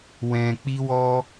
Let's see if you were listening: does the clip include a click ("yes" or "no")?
no